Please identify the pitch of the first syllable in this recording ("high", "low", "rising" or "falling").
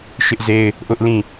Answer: high